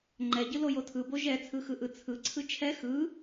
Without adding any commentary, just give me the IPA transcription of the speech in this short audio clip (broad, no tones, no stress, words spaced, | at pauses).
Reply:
ŋ͡ǃɛɟɯ lojotʰɯbo ʒɛt͡sʰɯ xɯʔɯt͡sʰɯǀʰɯ t͡ʃʰɛ xɯ